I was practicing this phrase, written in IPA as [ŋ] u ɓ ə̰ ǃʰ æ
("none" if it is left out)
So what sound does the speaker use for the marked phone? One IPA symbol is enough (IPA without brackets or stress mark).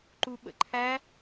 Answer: ǃ